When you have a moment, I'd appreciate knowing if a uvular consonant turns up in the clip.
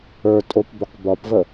yes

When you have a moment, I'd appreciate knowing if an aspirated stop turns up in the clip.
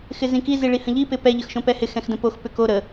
no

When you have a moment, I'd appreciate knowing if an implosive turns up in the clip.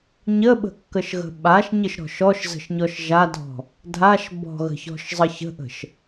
yes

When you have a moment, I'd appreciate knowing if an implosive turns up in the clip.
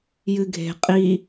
no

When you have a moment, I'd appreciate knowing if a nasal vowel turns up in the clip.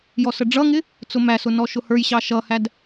no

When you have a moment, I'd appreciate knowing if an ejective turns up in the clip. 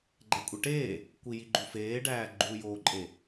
yes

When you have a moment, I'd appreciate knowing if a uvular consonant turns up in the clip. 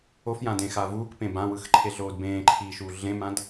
no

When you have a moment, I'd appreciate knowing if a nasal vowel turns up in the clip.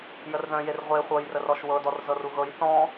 yes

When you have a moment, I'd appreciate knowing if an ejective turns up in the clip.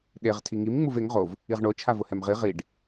no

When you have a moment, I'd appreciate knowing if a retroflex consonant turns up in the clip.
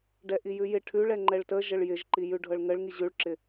yes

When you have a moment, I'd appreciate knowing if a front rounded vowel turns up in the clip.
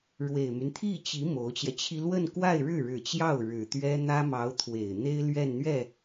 yes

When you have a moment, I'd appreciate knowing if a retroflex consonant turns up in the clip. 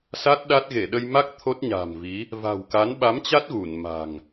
no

